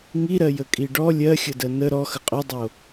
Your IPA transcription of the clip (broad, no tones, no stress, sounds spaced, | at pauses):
ŋ i ɾ ɜ j ə kʼ i ɖ ɔ lʲ ɜ xʲ ə d ɜ n ə ɾ ɔ x ə qʼ ɵ dˤ o